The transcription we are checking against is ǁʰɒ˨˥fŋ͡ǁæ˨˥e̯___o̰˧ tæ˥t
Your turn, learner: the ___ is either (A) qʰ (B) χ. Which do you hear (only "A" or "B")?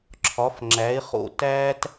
B